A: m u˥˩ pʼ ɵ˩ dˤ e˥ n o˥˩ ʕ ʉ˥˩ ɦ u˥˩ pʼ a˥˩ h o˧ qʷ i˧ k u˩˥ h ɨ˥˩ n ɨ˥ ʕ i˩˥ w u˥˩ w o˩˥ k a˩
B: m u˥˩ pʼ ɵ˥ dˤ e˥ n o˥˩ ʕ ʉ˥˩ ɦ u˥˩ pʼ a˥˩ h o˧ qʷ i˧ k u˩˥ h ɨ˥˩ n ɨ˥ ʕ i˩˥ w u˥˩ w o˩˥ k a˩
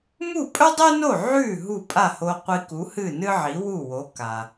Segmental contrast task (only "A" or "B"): B